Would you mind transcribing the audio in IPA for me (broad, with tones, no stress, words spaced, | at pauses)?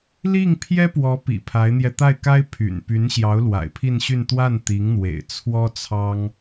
li˥˩ŋpʰjɛ˥pwɔ˧˥ pḭ˨˩pʰa˧˥ɪ̯n̪jɛ˧ t̪a˥˩ɪ̯ka˥ɪ̯pʰy̰˨˩n py˧˥nɕjɑ˧˥ʊ̯ lwa̰˨˩ɪ̯pʰi˥˧nɕy˥˧n t̪wa˥˩nt̪i˧˥ŋ n̪wḛ˨˩ɪ̯t͡sʰwɔ˥t͡sʰɑ˥ŋ